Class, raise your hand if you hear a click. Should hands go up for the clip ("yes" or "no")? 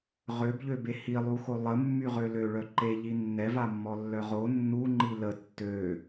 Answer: yes